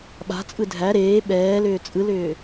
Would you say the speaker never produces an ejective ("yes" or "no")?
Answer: no